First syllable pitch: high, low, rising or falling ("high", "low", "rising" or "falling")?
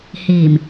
low